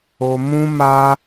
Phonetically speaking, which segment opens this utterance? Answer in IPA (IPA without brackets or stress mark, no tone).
o